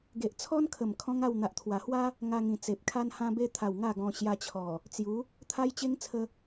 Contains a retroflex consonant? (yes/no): no